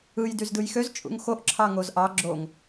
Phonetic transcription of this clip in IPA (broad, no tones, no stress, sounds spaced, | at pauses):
ɯ j d y z d ɯ j x ø z t͡ʃʼ ṵ ŋ x o ʔ ǁʰ ɑ ŋ o z ʔ ɑ ɡ͡ǁ o ŋ